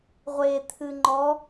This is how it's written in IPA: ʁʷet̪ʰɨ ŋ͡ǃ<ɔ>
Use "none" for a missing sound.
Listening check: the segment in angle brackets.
ɔ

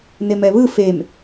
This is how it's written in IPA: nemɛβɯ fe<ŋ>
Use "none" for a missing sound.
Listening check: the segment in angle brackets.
m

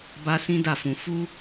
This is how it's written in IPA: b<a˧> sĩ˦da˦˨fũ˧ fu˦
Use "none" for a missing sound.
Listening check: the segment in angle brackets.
a˧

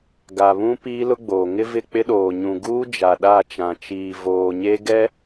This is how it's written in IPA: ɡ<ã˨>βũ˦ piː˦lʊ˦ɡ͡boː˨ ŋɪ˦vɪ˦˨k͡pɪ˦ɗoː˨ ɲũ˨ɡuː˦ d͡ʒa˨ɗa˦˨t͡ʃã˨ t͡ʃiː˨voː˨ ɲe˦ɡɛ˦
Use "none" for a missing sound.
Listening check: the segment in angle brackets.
a˨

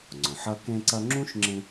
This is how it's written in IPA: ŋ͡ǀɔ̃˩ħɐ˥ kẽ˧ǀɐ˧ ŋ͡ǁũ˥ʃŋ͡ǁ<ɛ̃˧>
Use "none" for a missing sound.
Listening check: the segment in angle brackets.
ẽ˧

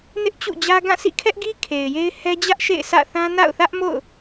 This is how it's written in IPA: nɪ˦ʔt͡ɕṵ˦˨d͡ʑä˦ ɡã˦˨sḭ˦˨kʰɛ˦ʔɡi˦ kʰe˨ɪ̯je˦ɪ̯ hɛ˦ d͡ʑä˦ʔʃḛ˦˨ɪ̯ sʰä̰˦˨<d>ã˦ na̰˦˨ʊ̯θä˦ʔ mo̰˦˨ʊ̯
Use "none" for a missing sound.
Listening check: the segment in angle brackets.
θ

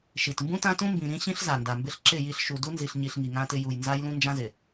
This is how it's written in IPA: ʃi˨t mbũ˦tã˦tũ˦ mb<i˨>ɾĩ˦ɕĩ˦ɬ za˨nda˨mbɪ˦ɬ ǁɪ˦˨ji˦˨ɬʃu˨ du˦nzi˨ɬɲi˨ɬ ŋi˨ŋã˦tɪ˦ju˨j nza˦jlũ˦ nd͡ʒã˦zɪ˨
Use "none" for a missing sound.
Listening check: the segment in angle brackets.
ĩ˨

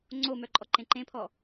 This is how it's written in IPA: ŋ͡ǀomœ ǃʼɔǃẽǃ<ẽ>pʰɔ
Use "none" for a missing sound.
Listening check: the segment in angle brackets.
ẽ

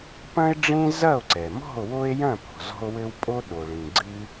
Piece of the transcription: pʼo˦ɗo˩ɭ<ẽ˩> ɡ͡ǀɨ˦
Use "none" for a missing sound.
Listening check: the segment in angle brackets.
ĩ˩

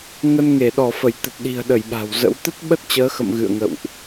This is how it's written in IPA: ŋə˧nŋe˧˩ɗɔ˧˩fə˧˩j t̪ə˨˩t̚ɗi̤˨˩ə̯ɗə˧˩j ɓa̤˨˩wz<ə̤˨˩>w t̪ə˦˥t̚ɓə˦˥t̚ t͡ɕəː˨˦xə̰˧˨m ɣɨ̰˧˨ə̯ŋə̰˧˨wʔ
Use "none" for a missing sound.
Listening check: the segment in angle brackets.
ə̰˧˥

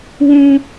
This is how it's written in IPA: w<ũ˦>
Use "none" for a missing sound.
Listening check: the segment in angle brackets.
ũ˦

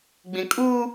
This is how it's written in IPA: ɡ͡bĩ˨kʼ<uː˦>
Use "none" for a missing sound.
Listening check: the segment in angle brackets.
uː˦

